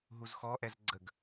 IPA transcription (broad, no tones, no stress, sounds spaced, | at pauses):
ɦ u z x ɔ ʔ ɛ z ɡ͡ǀ ə ɡ